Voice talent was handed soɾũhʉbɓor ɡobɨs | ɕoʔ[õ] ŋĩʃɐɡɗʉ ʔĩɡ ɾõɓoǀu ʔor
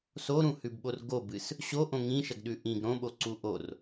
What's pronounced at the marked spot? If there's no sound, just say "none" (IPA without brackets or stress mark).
õ